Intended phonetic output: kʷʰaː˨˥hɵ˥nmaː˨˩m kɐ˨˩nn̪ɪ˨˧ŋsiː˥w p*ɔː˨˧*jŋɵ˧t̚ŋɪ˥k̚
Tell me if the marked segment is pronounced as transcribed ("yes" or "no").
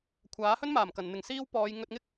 yes